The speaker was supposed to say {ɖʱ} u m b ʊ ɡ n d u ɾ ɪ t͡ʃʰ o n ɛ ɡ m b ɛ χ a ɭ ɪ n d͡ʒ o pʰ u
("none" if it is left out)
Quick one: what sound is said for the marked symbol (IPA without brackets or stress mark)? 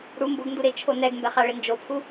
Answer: ɽ